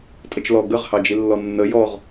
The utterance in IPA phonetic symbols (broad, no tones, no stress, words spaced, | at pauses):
tʼət͡ʃlɔ ɡəʁ hɑd͡ʒilːɔnːə jɔʁ